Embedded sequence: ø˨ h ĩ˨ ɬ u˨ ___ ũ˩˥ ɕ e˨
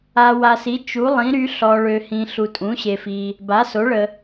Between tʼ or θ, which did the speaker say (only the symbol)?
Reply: tʼ